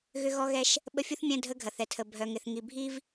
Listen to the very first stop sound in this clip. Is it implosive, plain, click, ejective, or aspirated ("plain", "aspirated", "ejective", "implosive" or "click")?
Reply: implosive